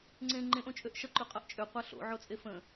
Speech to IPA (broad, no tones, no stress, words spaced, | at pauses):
ŋ͡ǀẽ ŋ͡ǃẽʔõt͡ʃʼøʔ ʃʌǃʉqʼʌʔ t͡ʃʼøqʷa ɬo̰ʕot͡sʼe fə̃